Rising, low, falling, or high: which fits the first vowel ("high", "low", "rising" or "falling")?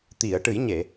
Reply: low